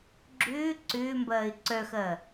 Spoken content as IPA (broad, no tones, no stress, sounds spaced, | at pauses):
ɡ͡ǁ ʏː ǀ ʏː m b ɐː ɪ̯ ǀ œ x ɐː